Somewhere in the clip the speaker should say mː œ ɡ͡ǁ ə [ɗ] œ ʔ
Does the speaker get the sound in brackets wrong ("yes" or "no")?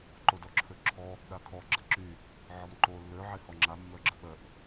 yes